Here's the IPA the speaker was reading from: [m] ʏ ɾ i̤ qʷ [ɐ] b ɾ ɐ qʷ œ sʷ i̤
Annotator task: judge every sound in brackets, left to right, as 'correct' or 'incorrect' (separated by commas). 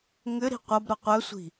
incorrect, correct